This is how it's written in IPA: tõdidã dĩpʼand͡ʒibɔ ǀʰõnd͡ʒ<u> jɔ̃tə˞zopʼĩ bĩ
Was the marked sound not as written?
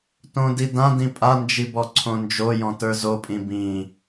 yes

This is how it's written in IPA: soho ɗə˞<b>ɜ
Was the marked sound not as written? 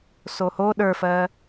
yes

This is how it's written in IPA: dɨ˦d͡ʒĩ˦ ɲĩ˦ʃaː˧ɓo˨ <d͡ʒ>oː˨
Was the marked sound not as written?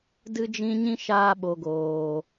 yes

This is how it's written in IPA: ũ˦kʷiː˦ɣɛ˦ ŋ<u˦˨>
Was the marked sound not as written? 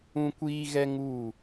no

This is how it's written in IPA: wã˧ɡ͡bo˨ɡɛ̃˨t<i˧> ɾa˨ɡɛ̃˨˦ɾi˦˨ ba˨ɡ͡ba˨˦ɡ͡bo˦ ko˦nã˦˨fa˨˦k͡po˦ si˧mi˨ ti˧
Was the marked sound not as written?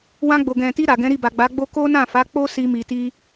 no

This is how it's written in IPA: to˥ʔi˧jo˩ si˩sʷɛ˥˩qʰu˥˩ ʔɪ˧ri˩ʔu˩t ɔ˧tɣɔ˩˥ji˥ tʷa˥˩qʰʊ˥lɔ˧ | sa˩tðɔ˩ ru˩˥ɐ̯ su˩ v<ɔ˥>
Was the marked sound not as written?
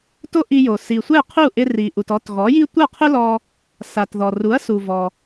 yes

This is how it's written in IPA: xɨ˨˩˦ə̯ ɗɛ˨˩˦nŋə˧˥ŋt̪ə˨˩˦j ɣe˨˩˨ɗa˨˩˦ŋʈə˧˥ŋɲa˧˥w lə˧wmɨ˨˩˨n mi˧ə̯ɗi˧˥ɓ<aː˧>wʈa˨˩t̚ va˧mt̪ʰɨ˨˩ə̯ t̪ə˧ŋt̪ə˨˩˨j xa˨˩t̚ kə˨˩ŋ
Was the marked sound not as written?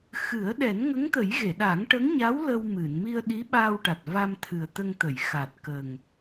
no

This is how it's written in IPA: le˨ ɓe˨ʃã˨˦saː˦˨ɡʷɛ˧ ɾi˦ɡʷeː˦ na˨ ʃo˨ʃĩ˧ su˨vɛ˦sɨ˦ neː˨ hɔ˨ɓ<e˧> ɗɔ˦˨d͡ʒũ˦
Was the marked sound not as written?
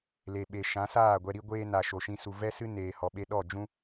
no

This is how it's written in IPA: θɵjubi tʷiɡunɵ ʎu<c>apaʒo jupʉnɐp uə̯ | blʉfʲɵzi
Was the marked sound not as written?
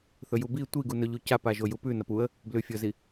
no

